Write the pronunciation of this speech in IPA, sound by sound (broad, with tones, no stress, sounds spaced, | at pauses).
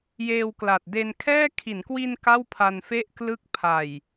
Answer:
j eː˧ w k l a˨˩ t̚ d e˧ n kʰ ɛː˥˩ kʰ i˩˦ n k w i˧ n k a˥˩ w pʰ a˧ n f e˥˩ ʔ k l ɯ˦˥ k̚ pʰ a˨˩ j